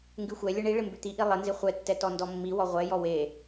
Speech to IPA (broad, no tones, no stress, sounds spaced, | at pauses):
ŋ ɡ ʉ xʷ ɛ lʲ ə ɳ i ɭ ɪ m b ʉ t̪ i ʔ i lˠ ɪ n z ɪ χʷ ɛ tː ɛ t ɔ n d ɔ mː i w ɔ ʁʷ ɛ j ɔ w e